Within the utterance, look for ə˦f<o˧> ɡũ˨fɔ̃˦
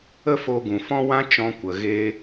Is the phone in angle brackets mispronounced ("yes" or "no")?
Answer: no